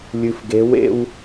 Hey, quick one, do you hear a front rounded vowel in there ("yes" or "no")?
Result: no